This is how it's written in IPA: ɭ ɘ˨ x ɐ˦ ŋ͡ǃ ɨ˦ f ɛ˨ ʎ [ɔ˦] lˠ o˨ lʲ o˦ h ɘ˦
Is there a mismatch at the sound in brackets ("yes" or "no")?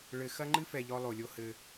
no